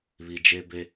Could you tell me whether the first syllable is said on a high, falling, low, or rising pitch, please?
low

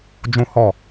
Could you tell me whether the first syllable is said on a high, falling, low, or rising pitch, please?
high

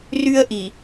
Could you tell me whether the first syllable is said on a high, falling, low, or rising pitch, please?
high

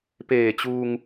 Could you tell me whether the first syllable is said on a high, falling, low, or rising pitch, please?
low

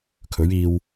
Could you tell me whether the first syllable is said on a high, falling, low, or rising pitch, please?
rising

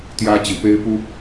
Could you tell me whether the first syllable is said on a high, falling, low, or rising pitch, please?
high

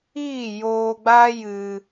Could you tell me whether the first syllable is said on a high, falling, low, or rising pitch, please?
falling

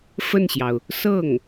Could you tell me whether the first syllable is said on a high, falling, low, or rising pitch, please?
falling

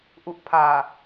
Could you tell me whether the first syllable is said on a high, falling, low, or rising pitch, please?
low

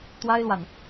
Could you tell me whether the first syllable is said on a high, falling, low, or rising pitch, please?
high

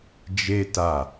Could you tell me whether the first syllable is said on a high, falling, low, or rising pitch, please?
high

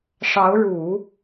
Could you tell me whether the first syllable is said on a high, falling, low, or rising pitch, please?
rising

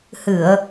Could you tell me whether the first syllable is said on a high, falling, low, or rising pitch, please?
low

